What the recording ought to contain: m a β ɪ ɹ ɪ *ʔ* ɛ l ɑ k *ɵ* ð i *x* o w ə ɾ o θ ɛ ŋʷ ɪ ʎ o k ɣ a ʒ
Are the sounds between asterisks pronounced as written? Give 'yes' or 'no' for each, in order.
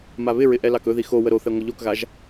yes, yes, yes

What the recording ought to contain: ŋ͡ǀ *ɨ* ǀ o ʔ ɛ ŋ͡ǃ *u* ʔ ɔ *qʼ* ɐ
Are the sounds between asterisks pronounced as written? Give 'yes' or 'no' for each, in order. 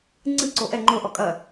yes, no, no

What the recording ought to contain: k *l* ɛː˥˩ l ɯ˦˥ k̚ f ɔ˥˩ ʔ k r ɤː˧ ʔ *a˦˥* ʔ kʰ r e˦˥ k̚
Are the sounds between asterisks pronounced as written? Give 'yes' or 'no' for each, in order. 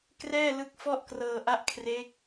no, no

